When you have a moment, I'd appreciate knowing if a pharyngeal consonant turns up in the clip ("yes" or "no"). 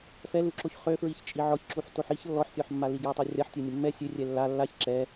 yes